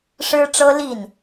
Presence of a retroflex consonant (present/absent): present